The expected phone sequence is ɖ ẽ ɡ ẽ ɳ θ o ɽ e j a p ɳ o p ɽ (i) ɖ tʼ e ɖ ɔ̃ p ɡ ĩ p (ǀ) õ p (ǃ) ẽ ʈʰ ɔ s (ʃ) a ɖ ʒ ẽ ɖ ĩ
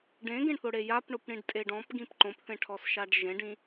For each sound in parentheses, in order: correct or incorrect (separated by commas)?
incorrect, incorrect, incorrect, correct